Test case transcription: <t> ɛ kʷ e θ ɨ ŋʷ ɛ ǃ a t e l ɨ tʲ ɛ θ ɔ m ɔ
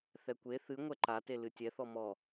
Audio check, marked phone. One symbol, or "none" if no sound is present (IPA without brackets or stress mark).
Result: θ